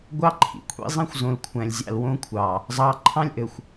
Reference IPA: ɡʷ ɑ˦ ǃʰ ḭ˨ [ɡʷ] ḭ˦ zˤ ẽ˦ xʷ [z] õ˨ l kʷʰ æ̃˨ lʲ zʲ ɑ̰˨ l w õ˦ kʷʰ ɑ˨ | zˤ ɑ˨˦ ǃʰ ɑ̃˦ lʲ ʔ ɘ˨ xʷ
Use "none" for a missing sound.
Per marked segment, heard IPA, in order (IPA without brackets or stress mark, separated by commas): kʷʰ, z